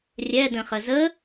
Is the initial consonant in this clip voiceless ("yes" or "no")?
no